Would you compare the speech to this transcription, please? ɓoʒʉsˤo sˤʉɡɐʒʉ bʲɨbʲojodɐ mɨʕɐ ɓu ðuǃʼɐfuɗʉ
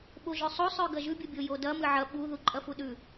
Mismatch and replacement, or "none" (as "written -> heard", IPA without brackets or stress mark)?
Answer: none